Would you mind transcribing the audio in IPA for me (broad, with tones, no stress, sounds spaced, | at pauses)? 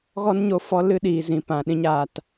ɣ ɔ˦ n ɲ o˦ f ɔ˦ l ɨ˦ ɗ iː˨ z ĩ˨ p ã˨ ɗ ĩ˦ ɲ aː˧ t